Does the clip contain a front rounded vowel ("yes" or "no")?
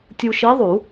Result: no